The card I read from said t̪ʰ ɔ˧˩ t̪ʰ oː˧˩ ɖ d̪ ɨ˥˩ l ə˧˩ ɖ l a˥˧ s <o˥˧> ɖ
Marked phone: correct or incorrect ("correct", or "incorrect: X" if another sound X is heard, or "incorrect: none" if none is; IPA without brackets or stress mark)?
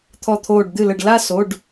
incorrect: o˩˧˩